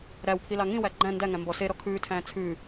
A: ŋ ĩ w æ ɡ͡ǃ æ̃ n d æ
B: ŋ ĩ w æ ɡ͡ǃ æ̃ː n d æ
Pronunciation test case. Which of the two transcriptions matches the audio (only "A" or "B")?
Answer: A